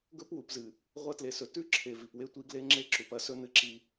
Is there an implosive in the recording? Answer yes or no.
no